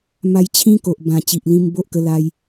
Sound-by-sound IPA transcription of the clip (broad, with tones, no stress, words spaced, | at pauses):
ma˧jt͡ɕʰĩ˦ ko˨ʔbã˨˩ t͡ɕi˨ʔlĩ˧m bo˦ʔkə˧ la˧j